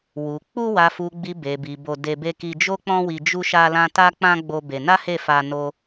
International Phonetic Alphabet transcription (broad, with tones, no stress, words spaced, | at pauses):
wu˨ k͡pu˧wa˨fu˨ɡ͡bi˨ be˨bi˨ bo˧de˧be˦ ki˧d͡ʒo˦k͡pɔ̃˦wi˧ d͡ʒu˦ʃa˦lã˦ ta˦k͡pã˦ ɡ͡bo˦be˧ na˦he˦˨fa˧ no˦